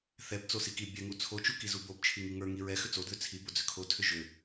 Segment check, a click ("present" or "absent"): absent